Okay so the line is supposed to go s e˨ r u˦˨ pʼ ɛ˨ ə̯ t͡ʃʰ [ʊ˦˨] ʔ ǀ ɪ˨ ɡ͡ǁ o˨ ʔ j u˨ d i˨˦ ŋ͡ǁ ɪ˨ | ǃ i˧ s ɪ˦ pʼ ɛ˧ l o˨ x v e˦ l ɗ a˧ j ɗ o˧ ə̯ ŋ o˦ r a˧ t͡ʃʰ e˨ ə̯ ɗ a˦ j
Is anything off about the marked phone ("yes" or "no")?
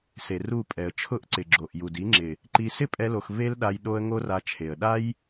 no